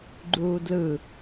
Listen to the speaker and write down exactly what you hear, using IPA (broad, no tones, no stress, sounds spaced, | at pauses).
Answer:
ɡ͡ǃ uː d l ɯ